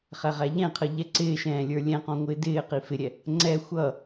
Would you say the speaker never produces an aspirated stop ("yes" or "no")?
no